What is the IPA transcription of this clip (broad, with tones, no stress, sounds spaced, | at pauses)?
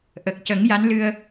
ʔ ə˨˩ k̚ c ə˨˩˦ ŋ j a˧˥ n l ɨ˧ ə̯